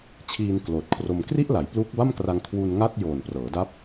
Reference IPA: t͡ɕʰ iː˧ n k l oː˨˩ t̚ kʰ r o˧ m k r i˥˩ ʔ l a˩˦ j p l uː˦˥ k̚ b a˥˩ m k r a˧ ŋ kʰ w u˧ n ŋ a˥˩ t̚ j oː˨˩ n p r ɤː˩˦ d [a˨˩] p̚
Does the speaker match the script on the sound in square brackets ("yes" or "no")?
no